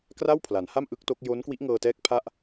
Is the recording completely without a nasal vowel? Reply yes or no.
yes